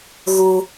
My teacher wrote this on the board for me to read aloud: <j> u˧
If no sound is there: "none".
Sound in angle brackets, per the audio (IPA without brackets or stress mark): ɣ